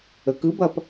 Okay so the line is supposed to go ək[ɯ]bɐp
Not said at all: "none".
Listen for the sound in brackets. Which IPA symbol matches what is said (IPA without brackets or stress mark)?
ɯ